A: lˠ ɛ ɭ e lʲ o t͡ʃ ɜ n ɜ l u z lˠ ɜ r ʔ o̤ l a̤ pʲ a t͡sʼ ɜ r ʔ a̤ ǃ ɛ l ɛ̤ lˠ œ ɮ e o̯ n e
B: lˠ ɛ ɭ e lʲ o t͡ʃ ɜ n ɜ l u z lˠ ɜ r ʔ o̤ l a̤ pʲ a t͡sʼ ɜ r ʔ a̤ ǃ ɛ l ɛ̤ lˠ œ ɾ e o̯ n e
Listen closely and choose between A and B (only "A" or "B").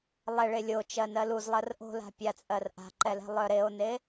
B